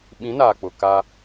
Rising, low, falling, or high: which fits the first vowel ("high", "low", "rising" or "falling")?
rising